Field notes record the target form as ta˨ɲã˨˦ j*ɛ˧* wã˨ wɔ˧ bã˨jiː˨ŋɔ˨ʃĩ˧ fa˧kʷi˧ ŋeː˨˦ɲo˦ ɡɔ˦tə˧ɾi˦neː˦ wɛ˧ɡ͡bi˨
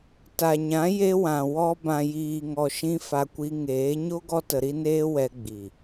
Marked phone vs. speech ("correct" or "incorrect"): incorrect